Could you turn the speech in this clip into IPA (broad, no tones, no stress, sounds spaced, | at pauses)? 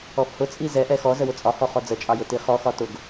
ɔ f h ʊ t͡sʼ i z ɛ ʔ ɛ x ɔ z ə w ʊ t͡sʼ ɒ h ɔ χ ɔ d͡z ə t͡ʃʼ ɑ j ʊ t i χ ɔ x ɒ t ʊ ɡ